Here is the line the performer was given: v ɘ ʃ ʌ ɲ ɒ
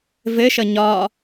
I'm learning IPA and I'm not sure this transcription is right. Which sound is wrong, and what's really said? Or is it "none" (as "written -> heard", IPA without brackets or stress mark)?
none